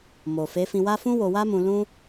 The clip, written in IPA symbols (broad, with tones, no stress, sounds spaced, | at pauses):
m o˨ f e˨˦ f ĩ˧ w a˦ f ũ˦ w o˧ w a˦ m ũ˧ l ũ˦